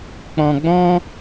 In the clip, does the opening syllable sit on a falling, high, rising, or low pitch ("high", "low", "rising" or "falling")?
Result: low